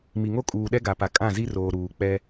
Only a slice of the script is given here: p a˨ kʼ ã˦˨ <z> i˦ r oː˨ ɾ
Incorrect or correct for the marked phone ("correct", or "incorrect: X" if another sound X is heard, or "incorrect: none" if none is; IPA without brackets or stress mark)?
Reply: correct